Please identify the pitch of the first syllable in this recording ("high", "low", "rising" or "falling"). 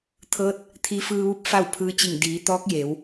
rising